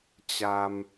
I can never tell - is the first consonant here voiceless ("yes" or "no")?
yes